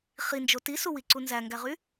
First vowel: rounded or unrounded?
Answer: unrounded